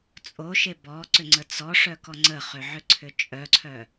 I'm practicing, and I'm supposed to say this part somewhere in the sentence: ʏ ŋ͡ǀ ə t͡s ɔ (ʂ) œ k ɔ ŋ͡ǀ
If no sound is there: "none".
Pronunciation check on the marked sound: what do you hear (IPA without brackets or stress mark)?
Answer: ʂ